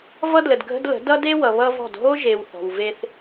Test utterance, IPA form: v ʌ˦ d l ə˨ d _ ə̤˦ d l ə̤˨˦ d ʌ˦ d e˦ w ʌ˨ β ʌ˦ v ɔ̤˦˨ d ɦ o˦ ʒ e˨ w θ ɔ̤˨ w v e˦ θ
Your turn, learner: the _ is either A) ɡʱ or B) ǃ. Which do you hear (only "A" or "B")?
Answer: A